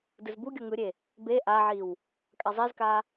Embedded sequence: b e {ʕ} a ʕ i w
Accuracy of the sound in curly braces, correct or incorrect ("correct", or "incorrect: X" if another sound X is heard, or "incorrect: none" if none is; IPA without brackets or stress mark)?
incorrect: ʔ